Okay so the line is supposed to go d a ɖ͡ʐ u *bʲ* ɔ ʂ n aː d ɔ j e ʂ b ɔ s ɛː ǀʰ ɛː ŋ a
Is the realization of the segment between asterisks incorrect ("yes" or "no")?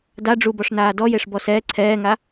yes